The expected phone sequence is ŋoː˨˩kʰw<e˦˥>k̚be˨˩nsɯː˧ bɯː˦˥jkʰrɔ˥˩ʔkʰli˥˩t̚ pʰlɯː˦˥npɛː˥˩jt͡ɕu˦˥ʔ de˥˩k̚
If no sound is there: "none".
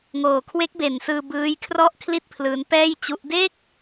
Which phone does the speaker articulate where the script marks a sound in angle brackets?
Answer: e˦˥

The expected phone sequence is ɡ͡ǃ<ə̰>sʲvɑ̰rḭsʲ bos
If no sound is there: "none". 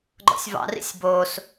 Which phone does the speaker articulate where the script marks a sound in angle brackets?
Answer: ɔ̰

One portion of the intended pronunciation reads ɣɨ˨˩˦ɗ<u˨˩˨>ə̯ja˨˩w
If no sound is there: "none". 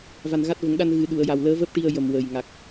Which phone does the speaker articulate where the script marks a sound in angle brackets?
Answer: u˨˩˨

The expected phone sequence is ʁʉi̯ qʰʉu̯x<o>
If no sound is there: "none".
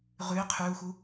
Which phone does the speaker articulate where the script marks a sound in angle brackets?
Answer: u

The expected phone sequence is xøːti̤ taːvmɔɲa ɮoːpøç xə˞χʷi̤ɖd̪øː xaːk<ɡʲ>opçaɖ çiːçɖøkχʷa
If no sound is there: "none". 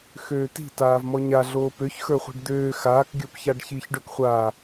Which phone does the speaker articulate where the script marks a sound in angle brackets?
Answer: ɡʲ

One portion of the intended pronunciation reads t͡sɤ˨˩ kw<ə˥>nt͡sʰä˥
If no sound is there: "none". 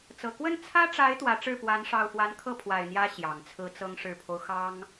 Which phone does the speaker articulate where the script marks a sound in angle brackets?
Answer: ə˥˩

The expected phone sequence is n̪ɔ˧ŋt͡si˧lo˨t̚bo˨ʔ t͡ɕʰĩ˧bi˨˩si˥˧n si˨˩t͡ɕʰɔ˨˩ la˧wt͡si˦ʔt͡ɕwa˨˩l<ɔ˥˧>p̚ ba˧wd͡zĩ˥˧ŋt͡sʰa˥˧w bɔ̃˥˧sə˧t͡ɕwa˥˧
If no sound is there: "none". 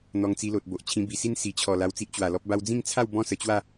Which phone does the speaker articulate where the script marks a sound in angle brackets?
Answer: ɔ˦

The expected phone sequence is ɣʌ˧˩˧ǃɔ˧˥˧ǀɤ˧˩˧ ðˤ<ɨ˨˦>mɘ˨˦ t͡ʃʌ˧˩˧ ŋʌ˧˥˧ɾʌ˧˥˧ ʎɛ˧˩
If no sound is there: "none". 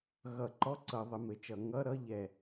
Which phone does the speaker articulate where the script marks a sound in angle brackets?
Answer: ə˨˦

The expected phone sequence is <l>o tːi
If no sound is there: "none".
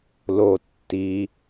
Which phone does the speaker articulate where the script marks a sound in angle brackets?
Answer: l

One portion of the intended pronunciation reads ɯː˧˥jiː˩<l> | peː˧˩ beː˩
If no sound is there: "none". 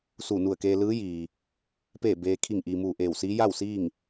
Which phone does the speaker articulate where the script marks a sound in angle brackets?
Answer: none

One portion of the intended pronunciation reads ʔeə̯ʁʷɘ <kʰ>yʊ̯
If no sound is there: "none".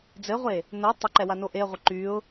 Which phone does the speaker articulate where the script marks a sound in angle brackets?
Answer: ǃ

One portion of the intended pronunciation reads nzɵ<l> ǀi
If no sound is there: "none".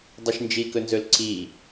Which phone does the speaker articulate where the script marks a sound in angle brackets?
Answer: l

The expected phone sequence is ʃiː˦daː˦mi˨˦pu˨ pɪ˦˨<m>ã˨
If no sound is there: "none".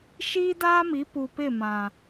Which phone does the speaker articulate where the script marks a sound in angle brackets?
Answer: m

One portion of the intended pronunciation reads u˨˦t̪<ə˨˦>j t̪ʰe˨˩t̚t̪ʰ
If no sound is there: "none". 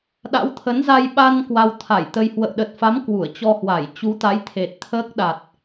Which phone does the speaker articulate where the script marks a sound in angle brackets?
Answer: a˨˦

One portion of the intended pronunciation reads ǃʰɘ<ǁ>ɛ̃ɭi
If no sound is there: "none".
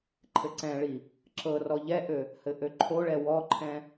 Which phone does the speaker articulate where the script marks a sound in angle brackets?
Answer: ǀ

